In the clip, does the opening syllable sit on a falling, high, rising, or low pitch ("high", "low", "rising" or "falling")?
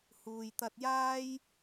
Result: low